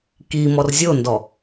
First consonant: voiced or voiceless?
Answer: voiceless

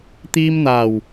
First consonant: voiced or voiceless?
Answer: voiceless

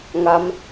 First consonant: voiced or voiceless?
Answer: voiced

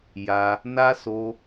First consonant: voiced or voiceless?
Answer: voiced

